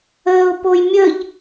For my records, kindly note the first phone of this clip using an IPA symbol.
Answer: əː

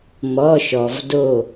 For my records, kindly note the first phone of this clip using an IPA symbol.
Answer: m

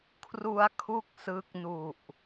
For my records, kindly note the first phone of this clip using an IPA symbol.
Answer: kʰ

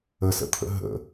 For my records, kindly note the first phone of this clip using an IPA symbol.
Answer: ə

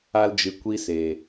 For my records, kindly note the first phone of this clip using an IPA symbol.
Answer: a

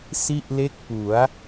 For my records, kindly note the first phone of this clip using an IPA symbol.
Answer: s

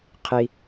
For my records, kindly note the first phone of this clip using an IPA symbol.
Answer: qʰ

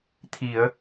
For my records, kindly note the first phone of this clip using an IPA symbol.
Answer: t̪ʰ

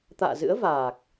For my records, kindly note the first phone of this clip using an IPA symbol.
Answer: t̪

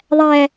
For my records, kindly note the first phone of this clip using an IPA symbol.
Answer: ðˤ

